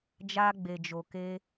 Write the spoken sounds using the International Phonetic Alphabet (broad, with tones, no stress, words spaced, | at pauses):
d͡ʒa˧ɡ͡be˨d͡ʒo˨ke˧